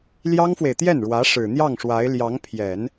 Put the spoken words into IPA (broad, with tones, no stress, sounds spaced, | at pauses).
l j ɑ˥ ŋ f w e˨ ɪ̯ t̪ j ɛ˥˩ n ɻ w ä˧˥ ʂ ɻ̩˨˩ n̪ j ɑ˥˩ ŋ ʂ w a˧˥ ɪ̯ l j ɑ˧˥ ŋ pʰ j ɛ˨˩˦ n